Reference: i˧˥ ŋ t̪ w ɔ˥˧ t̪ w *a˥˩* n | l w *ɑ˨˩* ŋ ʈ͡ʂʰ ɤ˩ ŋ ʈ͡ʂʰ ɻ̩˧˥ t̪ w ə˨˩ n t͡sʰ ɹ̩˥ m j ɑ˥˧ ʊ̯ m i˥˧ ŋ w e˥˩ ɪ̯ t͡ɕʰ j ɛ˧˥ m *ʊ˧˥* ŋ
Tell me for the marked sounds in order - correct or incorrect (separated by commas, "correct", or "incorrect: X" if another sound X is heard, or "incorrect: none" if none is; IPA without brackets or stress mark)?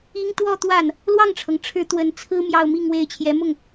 correct, incorrect: ɑ˥˩, incorrect: ʊ˥˩